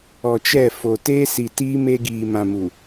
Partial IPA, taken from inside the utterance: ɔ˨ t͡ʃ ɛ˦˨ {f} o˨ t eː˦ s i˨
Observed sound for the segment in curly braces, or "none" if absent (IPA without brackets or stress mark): f